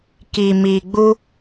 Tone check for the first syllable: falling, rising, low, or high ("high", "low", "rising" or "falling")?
low